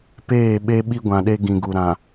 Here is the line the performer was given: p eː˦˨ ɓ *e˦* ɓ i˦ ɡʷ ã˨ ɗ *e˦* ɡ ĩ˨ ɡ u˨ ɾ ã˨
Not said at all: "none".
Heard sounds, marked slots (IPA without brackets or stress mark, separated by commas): e˦, e˦